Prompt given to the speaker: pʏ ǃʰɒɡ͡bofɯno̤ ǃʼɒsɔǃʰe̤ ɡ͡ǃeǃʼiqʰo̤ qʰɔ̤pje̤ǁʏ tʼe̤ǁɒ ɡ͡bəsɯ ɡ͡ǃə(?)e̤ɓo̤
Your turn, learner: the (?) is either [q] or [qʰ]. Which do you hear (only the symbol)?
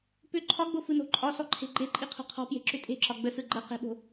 q